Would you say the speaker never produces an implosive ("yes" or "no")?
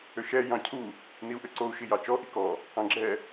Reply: yes